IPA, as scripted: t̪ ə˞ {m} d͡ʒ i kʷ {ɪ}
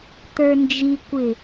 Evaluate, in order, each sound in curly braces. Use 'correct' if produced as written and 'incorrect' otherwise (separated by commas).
incorrect, correct